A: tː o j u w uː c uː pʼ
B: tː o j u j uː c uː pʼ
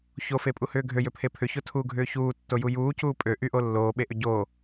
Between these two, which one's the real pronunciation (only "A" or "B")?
B